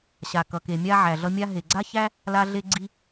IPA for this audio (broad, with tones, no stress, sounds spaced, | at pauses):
ɕ a˩ k ʌ˩ k e˩ mʲ a˧ ʕ æ˩ ɮ ʌ˧ mʲ a˧ ɦ e˩ ɡ͡ǀ a˥ ç æ˥ | l a˧ ɮ e˧ ɡ͡ǀ i˧